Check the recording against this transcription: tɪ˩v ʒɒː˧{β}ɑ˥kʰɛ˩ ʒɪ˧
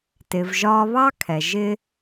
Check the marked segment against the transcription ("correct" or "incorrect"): correct